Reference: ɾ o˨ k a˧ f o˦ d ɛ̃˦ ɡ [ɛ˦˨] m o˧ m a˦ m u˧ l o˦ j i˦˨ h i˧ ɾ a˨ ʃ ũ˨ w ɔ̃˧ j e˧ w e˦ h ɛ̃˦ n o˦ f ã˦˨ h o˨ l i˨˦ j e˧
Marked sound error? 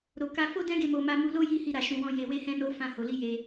yes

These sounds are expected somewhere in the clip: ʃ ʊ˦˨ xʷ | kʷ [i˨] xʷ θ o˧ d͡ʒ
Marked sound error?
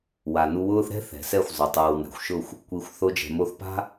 no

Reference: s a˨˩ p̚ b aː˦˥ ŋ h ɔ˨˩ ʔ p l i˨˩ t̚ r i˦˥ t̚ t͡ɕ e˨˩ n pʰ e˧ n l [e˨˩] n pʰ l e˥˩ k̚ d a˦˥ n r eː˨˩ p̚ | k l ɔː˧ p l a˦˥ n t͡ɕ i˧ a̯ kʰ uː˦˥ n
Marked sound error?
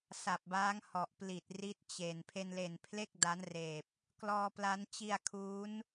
no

